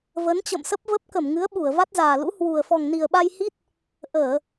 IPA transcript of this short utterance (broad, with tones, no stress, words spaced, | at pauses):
və˨˦nt͡ɕə̰˧˨msə˦˥p̚ və˦˥p̚ kə˧˩m ŋɨ˨˦ə̯ɓu˧˩ə̯ va˦˥t̚zaː˨˩lṵ˧˥ hwu˨˩ə̯fɔ˨˩ŋ ni˨˩ə̯ɓa˧j hi˦˥t̚ | ʔəː˧˩˨